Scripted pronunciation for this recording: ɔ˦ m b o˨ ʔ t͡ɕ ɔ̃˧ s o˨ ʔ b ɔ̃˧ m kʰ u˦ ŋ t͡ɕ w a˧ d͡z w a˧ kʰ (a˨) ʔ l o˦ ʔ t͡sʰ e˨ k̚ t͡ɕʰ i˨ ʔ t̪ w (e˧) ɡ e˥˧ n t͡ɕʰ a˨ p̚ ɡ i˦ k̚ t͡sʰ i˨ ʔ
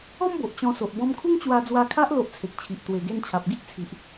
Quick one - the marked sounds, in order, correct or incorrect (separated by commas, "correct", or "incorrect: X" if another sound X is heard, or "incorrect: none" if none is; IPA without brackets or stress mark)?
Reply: incorrect: a˦, incorrect: e˨˩